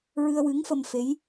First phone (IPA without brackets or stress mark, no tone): ɹ